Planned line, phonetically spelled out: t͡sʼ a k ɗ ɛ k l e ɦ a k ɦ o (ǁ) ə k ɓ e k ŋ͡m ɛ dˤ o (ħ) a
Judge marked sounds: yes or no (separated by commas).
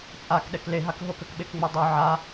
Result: no, no